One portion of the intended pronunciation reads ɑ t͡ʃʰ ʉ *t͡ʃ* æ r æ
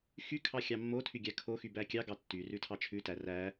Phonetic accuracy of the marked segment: incorrect: t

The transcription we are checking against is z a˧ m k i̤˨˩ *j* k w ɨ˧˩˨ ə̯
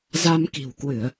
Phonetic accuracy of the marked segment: incorrect: w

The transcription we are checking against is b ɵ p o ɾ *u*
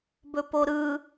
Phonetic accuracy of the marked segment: incorrect: ɯ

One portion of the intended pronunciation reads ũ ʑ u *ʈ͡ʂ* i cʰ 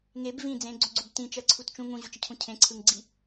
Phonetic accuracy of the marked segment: incorrect: t͡ʃ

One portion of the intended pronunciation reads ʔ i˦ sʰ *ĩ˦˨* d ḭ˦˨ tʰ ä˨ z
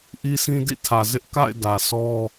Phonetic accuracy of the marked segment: incorrect: ĩ˦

